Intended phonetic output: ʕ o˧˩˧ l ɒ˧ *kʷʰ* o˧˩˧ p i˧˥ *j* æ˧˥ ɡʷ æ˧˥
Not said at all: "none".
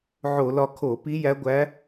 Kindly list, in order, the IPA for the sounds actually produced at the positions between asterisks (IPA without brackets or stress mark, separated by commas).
kʰ, j